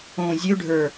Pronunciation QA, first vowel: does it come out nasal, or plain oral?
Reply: nasal